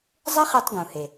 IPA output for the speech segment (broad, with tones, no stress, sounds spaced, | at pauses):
zˤ e˥ χ e˧ tˤ ɡ ũ˩ h e˩